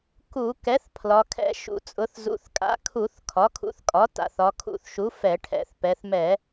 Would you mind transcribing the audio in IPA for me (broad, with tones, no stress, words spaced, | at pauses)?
ku˧˩˧ kɛ˩˥θ pʰlɒ˩˧kʰɛ̰˧˩˧ ʃṵ˩˧t͡sʼʊ˩˧θ zṵ˩˥θkʼa̰˩˥kʰu˧˩˧θ kʰɒ˩˥kʰṵ˩˥θkʼɒ˩˥ ta̰˩˧θɒ˩˧kʰṵ˧˩˧θʃu˩˥ fɛ˧˩˧ʈʰɛ̰˩˧θpɛ˩˧θmɛ˧˩˧